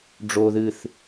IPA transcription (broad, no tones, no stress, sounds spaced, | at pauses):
ɖ͡ʐ o ð ɨ θ